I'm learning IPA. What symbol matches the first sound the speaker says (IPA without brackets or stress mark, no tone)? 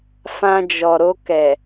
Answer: f